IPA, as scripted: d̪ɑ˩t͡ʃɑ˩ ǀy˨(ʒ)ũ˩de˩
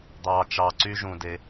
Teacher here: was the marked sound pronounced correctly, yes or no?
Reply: yes